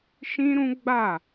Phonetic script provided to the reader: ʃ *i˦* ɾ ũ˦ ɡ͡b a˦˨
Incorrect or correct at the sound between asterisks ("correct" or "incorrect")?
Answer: incorrect